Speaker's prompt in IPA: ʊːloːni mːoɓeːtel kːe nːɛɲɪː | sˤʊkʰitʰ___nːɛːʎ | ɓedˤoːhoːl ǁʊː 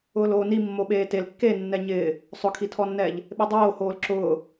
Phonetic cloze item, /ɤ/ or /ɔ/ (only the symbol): ɔ